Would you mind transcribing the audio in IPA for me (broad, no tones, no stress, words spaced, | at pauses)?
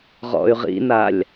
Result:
ʁɔ̰y̯ʁḭnalʲ